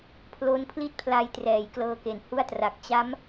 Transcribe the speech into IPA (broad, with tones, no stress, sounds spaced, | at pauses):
pʰ l o˦˥ n pʰ l i˥˩ t̚ pʰ l a˧ j t r ɛː˩˦ j k l ɤː˧ k e˩˦ n h u˥˩ a̯ t r a˨˩ k̚ t͡ɕ a˦˥ m